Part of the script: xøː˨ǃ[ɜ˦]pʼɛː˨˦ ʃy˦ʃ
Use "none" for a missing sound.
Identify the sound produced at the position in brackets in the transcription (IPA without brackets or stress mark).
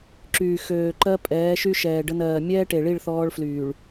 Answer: ɜ˦